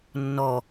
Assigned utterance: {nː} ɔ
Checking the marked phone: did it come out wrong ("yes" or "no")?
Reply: no